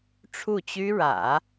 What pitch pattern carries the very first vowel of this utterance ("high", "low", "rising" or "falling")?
falling